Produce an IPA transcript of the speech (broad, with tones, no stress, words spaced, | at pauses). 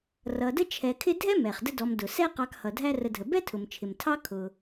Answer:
rʌ˨də˥ t͡ʃʰɛ˨kʰɪ˦dʱɛ˥mɛ˩χ də˦dɔ˨mdʊ˩sɛ˥ qɑ˨k hʌ˩dʱæ˦rə˨dʱə˩ bɛ˥tʰʊ˩mt͡ʃʰɪ˩mtʰɑ˦ kʰʊ˩